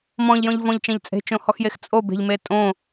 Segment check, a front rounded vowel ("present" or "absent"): absent